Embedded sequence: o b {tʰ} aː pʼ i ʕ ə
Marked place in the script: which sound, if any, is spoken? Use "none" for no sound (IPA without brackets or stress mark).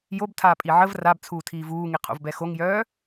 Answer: tʰ